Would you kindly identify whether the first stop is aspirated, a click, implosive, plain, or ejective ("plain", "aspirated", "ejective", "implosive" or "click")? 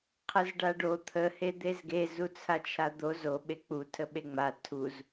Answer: aspirated